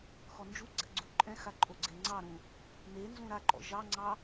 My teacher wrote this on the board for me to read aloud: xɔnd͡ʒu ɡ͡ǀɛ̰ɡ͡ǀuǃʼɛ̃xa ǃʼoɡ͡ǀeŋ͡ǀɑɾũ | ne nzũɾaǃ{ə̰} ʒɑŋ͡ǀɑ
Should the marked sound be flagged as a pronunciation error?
yes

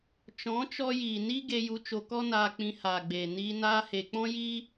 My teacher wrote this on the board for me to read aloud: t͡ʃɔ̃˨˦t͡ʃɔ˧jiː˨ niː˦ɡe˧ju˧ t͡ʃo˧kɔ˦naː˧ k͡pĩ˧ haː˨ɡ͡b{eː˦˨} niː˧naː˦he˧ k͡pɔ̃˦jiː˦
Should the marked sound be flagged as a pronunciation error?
yes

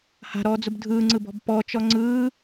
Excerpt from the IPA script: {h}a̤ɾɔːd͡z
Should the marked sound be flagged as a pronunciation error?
no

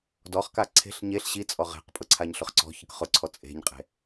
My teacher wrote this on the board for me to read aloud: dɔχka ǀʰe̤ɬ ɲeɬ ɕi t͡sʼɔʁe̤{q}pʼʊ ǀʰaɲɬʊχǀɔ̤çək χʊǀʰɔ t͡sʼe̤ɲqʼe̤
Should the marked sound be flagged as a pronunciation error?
no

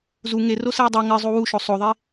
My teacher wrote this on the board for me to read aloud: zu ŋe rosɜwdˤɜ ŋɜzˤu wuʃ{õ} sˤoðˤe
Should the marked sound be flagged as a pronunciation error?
yes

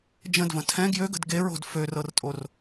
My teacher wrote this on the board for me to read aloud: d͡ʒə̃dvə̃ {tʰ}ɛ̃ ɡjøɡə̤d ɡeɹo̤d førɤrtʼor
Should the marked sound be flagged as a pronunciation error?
no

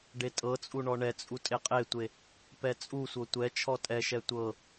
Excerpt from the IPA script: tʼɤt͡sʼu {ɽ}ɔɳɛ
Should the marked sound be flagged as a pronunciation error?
yes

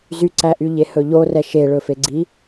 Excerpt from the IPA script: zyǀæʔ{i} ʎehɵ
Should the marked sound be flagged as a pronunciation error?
yes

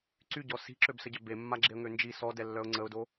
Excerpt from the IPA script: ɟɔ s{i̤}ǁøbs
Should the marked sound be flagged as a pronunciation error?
no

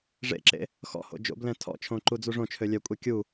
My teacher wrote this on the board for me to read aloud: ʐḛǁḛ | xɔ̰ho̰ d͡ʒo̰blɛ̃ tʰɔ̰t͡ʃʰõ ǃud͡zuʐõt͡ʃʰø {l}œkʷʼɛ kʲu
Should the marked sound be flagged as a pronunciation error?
yes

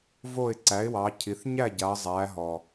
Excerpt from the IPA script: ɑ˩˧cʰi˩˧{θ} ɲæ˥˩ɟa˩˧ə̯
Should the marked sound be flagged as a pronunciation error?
no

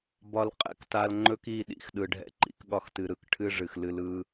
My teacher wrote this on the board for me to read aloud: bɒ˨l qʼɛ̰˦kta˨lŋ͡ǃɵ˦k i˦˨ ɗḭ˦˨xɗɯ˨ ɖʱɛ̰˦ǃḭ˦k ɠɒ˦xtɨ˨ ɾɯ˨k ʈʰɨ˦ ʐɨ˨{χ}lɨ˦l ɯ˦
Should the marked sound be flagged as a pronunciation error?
yes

